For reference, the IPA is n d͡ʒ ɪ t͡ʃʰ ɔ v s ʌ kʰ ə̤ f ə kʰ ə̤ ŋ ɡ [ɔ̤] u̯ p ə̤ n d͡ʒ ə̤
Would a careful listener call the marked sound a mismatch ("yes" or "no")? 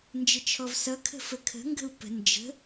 yes